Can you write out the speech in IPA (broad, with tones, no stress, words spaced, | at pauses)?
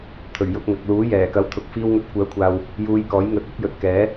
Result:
t̪ʰɵ˨˩ɥ jʊ˧k̚ ŋɐ˨k̚luː˨˥ jɛː˨˩kɐ˨˥wt̪ʰʊ˨k̚ fiː˧wŋɵ˨˥t̚kʷœː˨˥kʷʰaː˨w | juː˧jkɔː˨˥j ŋɵ˨t̚ɵ˥t̚jɵ˨t̚kɛː˨˥